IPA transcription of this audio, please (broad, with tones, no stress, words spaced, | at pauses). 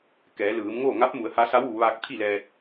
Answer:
kɛː˩˧lɯː˩˧mŋoː˥˨ ŋa˧˥p̚mu˩˧ə̯ ha˧˥ sa˧˥wʋu˩˧ ʋaː˧k̚t̪ʰi˥˨lɛː˧t̚